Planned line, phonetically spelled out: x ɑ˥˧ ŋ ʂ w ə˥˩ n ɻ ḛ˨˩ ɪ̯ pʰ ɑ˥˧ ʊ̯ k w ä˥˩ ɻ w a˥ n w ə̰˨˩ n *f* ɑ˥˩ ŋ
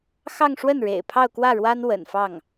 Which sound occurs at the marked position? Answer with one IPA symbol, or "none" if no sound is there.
f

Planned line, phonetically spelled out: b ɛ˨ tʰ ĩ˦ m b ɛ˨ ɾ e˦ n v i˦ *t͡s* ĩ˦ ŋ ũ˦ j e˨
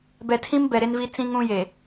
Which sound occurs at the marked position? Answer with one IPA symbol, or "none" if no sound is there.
t͡s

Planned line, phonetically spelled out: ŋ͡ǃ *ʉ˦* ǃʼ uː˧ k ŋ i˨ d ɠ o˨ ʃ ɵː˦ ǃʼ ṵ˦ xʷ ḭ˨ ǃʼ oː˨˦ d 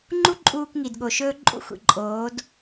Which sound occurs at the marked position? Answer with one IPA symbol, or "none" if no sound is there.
u˦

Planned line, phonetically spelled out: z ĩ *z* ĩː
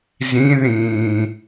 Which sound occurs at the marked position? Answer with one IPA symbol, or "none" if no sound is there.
ð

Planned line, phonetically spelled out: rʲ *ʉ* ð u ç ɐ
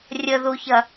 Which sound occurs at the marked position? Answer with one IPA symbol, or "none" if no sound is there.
ə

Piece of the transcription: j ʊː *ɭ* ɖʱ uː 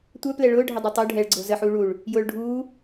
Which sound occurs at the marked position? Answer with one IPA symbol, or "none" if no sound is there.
ɭ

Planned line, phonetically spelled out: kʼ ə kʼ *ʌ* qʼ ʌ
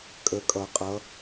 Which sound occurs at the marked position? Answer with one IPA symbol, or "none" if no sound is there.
ʌ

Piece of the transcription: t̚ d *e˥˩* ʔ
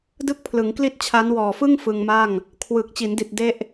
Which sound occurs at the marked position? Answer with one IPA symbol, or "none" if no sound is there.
e˥˩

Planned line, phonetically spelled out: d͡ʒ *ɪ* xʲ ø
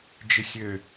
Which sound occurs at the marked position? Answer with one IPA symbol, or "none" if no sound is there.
ɪ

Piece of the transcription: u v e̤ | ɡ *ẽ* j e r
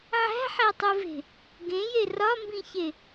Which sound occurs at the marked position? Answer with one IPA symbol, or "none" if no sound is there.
ẽ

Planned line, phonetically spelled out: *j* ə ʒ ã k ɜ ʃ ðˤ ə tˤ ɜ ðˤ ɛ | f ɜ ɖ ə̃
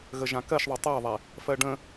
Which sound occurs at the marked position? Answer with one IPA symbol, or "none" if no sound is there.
ɣ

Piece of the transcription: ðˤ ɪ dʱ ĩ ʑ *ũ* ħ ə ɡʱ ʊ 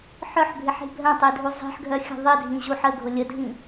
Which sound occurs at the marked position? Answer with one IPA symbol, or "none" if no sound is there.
u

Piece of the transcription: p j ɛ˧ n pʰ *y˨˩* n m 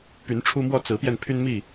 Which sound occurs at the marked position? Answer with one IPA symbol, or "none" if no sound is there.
y˦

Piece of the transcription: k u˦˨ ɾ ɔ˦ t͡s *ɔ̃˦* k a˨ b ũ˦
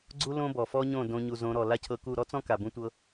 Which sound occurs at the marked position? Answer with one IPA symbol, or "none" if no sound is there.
ɔ̃˦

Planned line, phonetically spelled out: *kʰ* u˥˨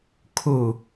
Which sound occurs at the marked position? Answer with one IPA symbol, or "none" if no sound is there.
kʰ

